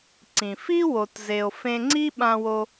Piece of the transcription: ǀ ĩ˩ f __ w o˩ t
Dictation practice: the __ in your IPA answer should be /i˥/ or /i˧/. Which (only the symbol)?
i˥